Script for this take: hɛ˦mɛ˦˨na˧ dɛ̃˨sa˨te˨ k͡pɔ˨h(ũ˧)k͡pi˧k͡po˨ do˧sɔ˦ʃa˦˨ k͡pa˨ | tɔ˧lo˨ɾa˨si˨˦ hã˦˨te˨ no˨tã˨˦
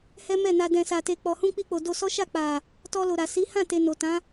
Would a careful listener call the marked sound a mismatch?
no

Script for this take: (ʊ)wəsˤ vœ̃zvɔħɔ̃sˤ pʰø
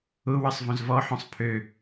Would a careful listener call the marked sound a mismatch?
no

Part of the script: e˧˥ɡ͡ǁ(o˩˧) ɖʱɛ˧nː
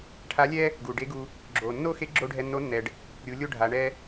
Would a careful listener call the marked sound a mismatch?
yes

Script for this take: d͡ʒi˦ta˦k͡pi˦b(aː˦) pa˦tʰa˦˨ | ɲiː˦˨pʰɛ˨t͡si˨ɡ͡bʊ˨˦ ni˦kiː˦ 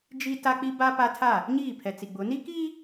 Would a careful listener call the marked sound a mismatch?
yes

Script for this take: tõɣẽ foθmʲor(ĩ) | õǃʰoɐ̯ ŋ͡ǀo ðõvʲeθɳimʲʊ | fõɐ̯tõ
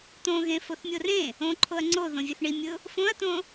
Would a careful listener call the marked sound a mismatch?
yes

